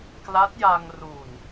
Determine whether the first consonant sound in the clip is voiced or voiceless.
voiceless